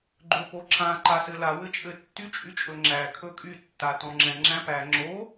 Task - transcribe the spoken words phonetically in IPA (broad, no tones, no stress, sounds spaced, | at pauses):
ɡ͡ǃ ɵ p o ǁ ã ǃ a s ɘ l a w ɘ t͡ʃʼ ɘ tː y t͡ʃʼ y t͡ʃʼ ɵ ŋ͡ǁ æ kʰ ɵ kʼ y tː a t ɔ̃ ŋ͡ǁ ɛ̃ ŋ͡ǁ æ̃ p æ ŋ͡ǁ o